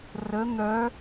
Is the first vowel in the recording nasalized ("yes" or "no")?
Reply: no